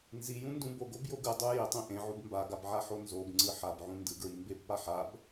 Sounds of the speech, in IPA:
n z i j ũ n d ũ b o ɡ o b j o ɡ ɯ dˤ u j i tˤ ẽ ʔ ẽ ʕ u b m b a ɡ a b ʕ a ħ o n z o b ŋ͡ǀ ɯ ħ a b ʕ ũ n d ɯ ɡ ɹ i m b e b p a ħ a b

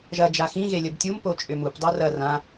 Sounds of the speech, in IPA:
ʒ ɐ d͡ʒ a x ĩ ɣ e lʲ ə b tʲ u m p o t͡ʃʼ ʏ m u p dˤ o r ɐ r ã

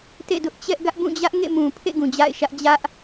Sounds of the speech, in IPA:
t ḛ˦˨ d ʊ˦ ʔ t͡ɕ ɛ˦ ʔ ɡ ä˦ ʔ b ũ˦˨ d͡ʑ ä˦ ʔ ŋ ḛ˦˨ m ũ˨ pʰ ḛ˦˨ ɡ ũ˨ d͡ʑ a̰˦˨ ɪ̯ ʃ ä˦ ʔ d͡ʑ ä˦ ʔ

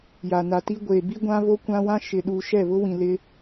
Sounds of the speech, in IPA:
j a˨ n a˨ t i˦ ɡʷ eː˨ b i˦ ɡʷ ã˦ β o˦ kʷ ã˦ w ã˦ ʃ ɪ˨ ɗ uː˨ ʃ ɛ˦˨ β ʊ˦ w ĩ˨ l ɪ˦

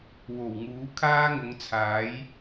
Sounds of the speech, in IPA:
w o˨˩ w ŋ uː˨˥ kʰ aː˥ ŋ ʊ˨˧ ŋ t͡sʰ aː˨˥ j

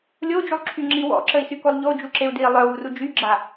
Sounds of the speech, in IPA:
lʲ o d͡ʒ u lˠ ǁʰ y ŋ͡ǁ i w ɔ̰ ǁ ə i̯ s y k o lˠ ʎ o d͡ʒ u ǁ e u̯ d i lˠ œ w u r u d͡ʒ y ɡ͡ǁ a

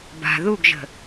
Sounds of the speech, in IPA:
b a̤ ð u ɡ ʒ ə̤

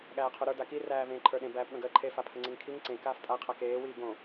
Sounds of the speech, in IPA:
ɠ æː qʰ o ɾ ə˞ d a k i r æː v ẽː ǃʰ ə˞ ɗ ẽ b æː p ɠ ə̃ ɡ əː ǃʰ e f a pʰ ə ŋ͡ǀ e ŋ kʰ i ŋ ǀ ẽ k aː f tʼ a qʰ a k eː w iː ɡ õ

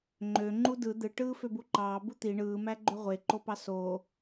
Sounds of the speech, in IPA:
ŋ͡ǃ ø ŋ͡ǃ u d ɯ d̪ ɯ ʈ ɯː f ø b u ǃ ɑː b u t̪ i ɳ ɯː m æ ɡ͡ǃ ø ʁʷ e ǃ o p ɑ s o

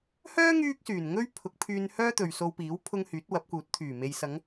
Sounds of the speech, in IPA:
h œː˥ ŋ yː˥ k̚ s yː˨˩ n ŋ ɵ˥ ɥ pʰ ʊ˨˥ k̚ pʰ yː˧ n h œː˥ t̪ ɵ˨ ɥ s o˧ w p iː˨˥ w pʰ ʊ˧ ŋ h yː˨˥ t̚ w ɐ˨˥ p̚ k uː˨˥ t̚ t̪ʰ yː˨˩ m e˨ j s ɐ˨˧ ŋ

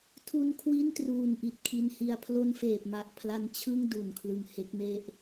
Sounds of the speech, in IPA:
tʰ u˧ n kʰ w i˥˩ n t r uː˨˩ n ʔ i˨˩ t̚ kʰ i˧ n h i˧ a̯ pʰ l o˦˥ n f eː˨˩ p̚ m a˨˩ ʔ pʰ l a˧ n t͡ɕʰ ɯ˥˩ ŋ d u˨˩ n kʰ l ɯ˨˩ ŋ h e˦˥ k̚ m e˥˩ ʔ

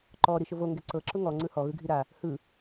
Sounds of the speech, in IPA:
ǃ ɔ ɾ i ʃ ʊ v o ŋ ɡ ɛ ǀ ɤ ǁ ʊ ŋ ɔ ŋ͡ǀ ɯ h ɔ ɣ ɯ ɡʱ i ɾ a | h ɯ

